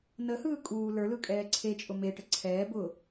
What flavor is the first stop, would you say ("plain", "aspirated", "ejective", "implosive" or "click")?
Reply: ejective